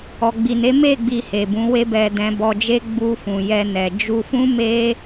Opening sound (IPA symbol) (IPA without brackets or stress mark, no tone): ɔ